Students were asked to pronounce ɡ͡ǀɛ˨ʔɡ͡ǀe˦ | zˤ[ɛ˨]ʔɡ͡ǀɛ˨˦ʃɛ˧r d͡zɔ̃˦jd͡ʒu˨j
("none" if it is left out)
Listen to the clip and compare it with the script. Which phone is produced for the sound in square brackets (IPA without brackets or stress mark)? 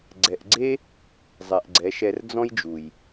ɛ˨